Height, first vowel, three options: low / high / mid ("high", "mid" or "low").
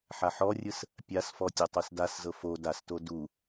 low